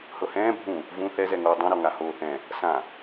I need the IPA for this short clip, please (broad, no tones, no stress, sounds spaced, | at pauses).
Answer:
h ɤ h ɛ̃ː bʱ ũ | v ũ θ ɛ z ɛ ŋ oː dˤ ũ ɾ ɔ ŋ a h oː θ ɛ̃ | s ã